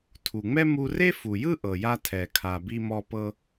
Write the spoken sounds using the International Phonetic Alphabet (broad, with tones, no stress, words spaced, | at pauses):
tʰu˩ŋ͡mɛ˥ mu˧re˥fu˩jɯ˥ ʔɤ˩ja˧ tʰɛ˩kʰa˩ bi˧mɔ˧pɤ˧